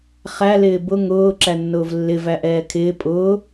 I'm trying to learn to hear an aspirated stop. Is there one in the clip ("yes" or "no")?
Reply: yes